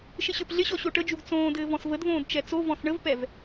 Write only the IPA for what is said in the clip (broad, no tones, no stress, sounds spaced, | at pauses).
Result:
ʃ ɪ ɕ ə˞ p ɮ ɪ ɕ ɔ ɕ o ʈ ə d͡ʒ u ɡ t͡s õː d ɘː v ɔ̃ s v ə d v õː d t͡ʃ ɛ t͡s o v ɔ̃ s ɳ ə v p ɛ v